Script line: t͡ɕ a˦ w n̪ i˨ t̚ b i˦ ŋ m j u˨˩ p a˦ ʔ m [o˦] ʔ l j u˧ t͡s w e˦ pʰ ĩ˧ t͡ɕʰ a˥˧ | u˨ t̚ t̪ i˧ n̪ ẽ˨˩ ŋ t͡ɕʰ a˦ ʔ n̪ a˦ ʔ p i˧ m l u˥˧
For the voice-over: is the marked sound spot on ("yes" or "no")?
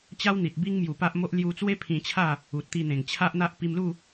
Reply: yes